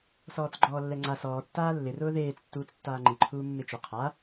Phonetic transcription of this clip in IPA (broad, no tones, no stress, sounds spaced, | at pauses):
s ɔː t͡s ɡ͡ǃ ɔː lː ɛ ŋ͡ǀ a s ɔː tː aː lː ɪ r ʊː ð eː t͡s tː uː t͡s tː aː ŋ͡ǃ i ǃʰ uː mː ɪ t͡ʃ ʊ qʰ a